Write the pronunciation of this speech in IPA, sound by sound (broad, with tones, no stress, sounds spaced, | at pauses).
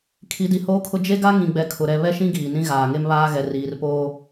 kʰ i˨˦ d i˨ h oː˦ kʰ ʊ˦ d͡ʒ e˦ ɡ a˦ ŋ ĩ˨ ɡ͡b ɛ˨ kʰ ʊ˨ ɾ ɛ˨ β ɛ˦ ʃ ĩ˦ ɡ iː˨ n ĩ˦ ɣ aː˨ ŋ e˦ m β aː˦ ɣ ɛ˨ r iː˨ r p oː˦